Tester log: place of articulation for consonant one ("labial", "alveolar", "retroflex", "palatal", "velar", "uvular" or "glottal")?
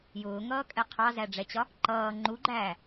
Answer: palatal